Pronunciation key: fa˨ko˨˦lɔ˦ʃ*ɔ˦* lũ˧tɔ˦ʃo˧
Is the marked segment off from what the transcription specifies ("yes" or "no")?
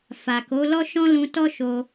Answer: yes